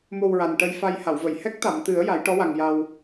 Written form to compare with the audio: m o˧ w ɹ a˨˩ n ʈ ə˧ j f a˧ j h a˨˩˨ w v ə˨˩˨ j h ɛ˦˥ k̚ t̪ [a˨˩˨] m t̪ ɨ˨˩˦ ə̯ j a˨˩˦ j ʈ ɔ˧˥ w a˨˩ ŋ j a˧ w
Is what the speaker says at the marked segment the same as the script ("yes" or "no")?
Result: yes